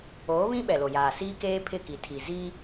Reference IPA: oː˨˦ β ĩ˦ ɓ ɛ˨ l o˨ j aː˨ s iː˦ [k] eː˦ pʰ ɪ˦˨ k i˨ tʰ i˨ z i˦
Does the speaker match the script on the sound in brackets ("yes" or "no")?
yes